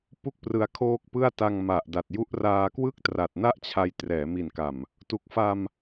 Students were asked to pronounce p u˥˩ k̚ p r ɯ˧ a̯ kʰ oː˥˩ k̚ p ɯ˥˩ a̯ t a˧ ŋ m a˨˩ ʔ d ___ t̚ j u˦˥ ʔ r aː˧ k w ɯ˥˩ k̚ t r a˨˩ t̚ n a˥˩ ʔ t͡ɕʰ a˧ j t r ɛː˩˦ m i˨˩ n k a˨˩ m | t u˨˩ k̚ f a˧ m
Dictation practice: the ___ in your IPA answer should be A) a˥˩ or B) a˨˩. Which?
B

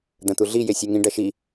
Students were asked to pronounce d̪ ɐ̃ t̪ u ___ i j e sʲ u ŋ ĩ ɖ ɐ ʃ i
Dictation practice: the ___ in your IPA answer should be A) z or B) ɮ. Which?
B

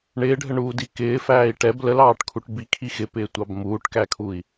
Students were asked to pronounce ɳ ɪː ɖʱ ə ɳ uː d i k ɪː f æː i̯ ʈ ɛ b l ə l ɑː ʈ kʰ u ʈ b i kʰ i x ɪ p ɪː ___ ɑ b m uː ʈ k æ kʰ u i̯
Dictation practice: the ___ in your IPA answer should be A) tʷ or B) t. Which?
A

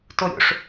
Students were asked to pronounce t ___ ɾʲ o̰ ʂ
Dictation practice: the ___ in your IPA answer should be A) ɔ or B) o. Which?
B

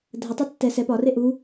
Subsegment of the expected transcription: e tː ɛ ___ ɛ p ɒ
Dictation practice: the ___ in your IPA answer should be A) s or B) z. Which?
A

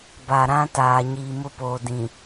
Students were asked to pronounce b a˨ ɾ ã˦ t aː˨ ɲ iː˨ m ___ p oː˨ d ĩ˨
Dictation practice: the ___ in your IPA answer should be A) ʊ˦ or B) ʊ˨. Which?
A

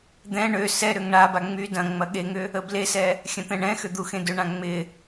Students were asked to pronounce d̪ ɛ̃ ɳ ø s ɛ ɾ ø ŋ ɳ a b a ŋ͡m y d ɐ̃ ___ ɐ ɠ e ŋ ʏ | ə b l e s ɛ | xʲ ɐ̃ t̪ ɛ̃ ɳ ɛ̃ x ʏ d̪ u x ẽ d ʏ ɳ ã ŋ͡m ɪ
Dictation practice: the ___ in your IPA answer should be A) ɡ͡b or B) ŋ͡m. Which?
B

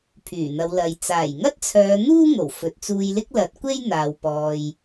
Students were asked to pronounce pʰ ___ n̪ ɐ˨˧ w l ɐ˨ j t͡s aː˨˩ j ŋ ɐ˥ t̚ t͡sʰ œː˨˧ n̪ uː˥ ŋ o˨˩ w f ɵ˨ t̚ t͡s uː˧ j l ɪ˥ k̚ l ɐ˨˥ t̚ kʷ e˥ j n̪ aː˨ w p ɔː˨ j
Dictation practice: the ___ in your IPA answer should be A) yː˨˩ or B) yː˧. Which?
A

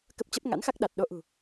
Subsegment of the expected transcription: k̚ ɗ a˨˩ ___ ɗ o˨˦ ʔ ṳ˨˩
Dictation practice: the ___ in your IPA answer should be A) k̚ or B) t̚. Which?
B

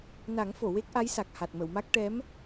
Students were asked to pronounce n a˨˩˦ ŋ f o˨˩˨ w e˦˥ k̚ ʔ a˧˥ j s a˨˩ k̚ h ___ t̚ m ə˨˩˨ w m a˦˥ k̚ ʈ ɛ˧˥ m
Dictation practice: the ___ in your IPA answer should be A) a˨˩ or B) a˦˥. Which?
A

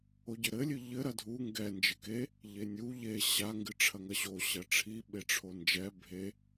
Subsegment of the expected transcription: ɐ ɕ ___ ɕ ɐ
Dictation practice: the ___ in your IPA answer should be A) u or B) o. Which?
B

